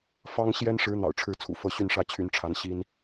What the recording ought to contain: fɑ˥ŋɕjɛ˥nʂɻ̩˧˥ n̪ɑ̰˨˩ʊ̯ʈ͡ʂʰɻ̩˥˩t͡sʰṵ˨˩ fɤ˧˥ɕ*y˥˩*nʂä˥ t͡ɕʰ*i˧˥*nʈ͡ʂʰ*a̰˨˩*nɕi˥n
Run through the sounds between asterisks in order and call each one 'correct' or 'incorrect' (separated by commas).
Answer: correct, incorrect, incorrect